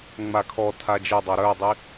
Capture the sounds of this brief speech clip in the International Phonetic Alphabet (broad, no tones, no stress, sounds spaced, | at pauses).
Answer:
ŋ͡m a kʰ ɔ tʰ a d͡ʒ e dˤ ɑ ɾ œ dˤ i